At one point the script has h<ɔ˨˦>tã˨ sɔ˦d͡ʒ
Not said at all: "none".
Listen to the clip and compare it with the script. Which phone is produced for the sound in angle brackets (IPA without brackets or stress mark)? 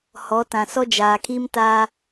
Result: ɔ˨˦